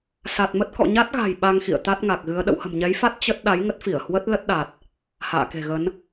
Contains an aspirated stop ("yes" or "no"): no